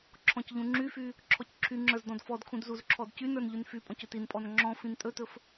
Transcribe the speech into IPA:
ǁʰɔ̃cʎũŋ͡ǁyfy | ǁʰɔcǁʰyŋ͡ǁə˞z dɔ̃dfɔdkʰũd zuzǁʰɔdcynə˞n ʎynfypʼɔ̃c ɵtinpʼɔn ŋ͡ǁɔ̃ fĩntʼɵtɵf

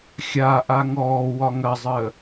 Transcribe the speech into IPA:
xʲa ʔaŋɔː wɒŋɐzˤəː

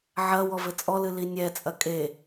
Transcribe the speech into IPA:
ʕɐ wɔvɘt͡sʼɔlɨ linʲɛt͡sʼɐ kʼe

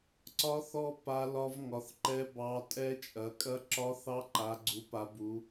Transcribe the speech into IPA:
ǀɒ˦˥θɔ˦˥ pa˦˥ lɒ˦˥vŋɒ˨˦θǃɛ˦˥ bɑ˦˥ tʼɛ˦˥t͡ʃʼɐ˨˦ kʼɐ˦˥ ǁɒ˦˥θɑ˦˥ ǃa˨˦ɡ͡ǀu˨˦pa˨˦bu˨˦

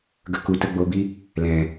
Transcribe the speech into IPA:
ɡə˨ ku˨tə˦˨ɡ͡bo˧bi˦ | lɛ̃˨

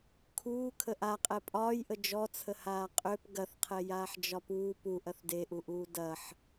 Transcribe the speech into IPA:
kʰuː kʰəʔa qʼɛpʼɒːjʔə d͡ʒɔt͡sʰə haːqʼøp ɡɐθqʰɛjaːħ d͡ʒɒpuː pu ʔɐθdeʔuʔuː dɐħ

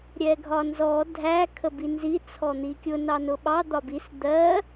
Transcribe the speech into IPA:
ɾʲɛɡʱɒnzɔ dʱæ kʰəbinzi t͡sʰɔn̪ikʲʊ nɑnʊɓɑ d̪ɒbis d̪ɜ

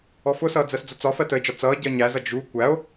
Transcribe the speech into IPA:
ɔfʊsʌː d͡zɜsd͡zʊt͡sɒfɜ təe̯d͡ʒɒ t͡sʌː ɟɜɲæzʌ d͡ʒu kʷæo̯

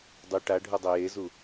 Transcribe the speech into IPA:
dˤu ʈaɖʱudˤɛ jezu

